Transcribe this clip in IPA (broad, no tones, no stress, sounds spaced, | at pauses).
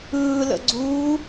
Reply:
ɯː l ə̰ ɡ͡ǀ uː